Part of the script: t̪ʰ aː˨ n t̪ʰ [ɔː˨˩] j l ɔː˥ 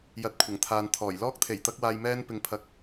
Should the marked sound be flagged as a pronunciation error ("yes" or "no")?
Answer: no